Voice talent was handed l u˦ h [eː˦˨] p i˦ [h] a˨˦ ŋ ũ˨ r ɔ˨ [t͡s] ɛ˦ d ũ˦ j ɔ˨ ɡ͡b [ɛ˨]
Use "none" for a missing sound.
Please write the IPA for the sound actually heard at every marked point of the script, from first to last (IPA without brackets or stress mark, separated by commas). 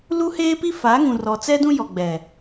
eː˦, f, t͡s, ɛ˨